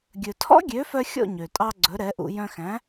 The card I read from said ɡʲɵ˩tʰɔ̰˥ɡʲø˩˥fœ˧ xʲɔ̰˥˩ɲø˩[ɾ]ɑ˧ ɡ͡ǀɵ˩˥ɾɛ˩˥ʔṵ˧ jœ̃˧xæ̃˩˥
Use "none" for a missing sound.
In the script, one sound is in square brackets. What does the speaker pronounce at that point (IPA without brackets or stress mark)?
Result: tʼ